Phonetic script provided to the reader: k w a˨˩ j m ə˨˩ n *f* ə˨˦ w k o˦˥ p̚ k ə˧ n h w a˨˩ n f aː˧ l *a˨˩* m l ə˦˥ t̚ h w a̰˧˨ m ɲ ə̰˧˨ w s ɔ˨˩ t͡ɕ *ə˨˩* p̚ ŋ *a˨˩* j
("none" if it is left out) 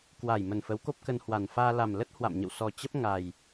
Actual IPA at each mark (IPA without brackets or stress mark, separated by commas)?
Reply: f, a˨˩, ə˦˥, a˨˩